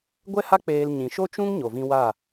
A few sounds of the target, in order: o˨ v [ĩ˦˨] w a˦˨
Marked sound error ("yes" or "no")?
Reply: yes